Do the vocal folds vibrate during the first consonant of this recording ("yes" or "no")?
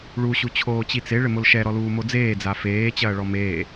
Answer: yes